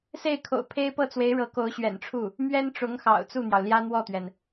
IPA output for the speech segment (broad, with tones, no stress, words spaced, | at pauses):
se˥˩ɪ̯kʰo̰˨˩ʊ̯ pʰe˥ɪ̯pɤ˥˩t͡swe˧˥ɪ̯ɻɤ˧˥ ko˧˥ʊ̯ɕɥɛ̰˨˩nʈ͡ʂʰu˥˩ | mɥɛ˥nʈ͡ʂʊ˧˥ŋ xɑ̰˨˩ʊ̯t͡su˥˩n̪jɑ˩ʊ̯ ljä˥n̪wɔ˥˩t̪ɥɛ˩n